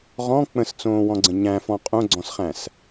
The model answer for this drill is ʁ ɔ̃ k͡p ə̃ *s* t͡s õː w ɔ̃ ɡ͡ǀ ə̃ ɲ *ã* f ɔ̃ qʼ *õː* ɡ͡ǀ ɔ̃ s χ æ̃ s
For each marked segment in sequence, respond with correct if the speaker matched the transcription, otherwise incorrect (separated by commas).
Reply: correct, incorrect, incorrect